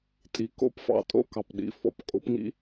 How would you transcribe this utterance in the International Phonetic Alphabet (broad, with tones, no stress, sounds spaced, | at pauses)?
tʼ i˨˩ k o̰˥ p f ɑ̰˧˥ tʼ o̰˥˨ k ɑ˨˩ p ɗ ḭ˨˩ f ɔ̰˨˩ p kʼ o̰˧˥˧ p ŋ ḭ˥